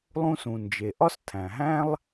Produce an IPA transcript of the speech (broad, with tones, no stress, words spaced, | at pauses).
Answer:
lˠũ˧sũ˩nd͡ʒe˩ ʔɒ˥stʰæ̃˩ɦæ̃˥lˠ